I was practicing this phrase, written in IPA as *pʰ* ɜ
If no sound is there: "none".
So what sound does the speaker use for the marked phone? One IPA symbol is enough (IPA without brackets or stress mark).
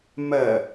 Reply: m